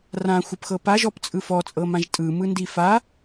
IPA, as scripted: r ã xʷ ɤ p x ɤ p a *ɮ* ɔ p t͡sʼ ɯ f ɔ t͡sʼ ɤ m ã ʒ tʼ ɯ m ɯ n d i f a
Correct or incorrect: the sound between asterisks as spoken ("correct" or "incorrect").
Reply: incorrect